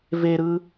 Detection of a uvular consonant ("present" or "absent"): absent